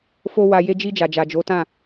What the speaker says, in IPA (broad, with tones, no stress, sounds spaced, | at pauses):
f o˧ w a˨ j e˧ d͡ʒ i˧ d͡ʒ a˨ d͡ʒ a˨ d͡ʒ o˨˦ t ã˦˨